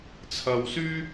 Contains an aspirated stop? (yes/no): yes